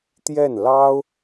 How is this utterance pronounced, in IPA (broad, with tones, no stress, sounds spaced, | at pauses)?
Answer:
t̪ j ɛ˥˩ n l ɑ˥ ʊ̯